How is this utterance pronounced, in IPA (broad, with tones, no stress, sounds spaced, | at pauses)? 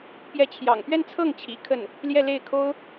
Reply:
p j ɛ˧˥ t͡ɕʰ j ɑ̰˨˩ ŋ p ɥ ɛ˥˧ n t͡sʰ ɤ˥˩ ŋ t͡ɕʰ ḭ˨˩ kʰ ə˥˩ n | l j ɛ˥˧ l e˥˩ ɪ̯ kʰ o˥ ʊ̯